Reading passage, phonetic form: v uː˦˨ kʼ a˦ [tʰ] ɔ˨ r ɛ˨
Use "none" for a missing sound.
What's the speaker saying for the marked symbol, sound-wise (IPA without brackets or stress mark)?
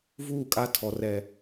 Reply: tʰ